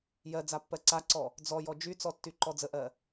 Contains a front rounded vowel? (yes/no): yes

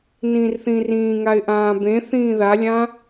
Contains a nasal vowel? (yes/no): yes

